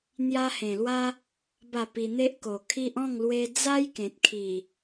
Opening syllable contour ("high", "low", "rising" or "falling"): high